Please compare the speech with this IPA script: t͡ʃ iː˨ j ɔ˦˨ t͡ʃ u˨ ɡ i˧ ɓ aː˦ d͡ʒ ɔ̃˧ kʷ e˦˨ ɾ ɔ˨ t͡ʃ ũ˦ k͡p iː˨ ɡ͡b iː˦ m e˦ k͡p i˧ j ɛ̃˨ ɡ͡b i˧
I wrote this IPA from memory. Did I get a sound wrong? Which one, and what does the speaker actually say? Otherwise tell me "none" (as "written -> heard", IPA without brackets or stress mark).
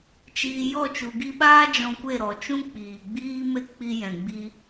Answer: none